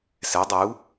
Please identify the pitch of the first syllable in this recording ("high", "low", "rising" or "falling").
rising